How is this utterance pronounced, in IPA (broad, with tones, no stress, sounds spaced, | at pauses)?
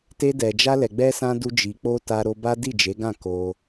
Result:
t e˦ d ɛ˧ d͡ʒ a˦ l ɛ˧ ɡ͡b ɛ˦ s ã˦ d u˦ d͡ʒ i˧ k͡p o˦ t a˦ ɾ o˦ b a˦ d i˦˨ d͡ʒ e˨˦ ɡ ã˦˨ k o˧